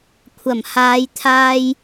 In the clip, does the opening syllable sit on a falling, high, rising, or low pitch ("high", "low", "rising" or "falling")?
low